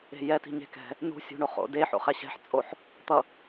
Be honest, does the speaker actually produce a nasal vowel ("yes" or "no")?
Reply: no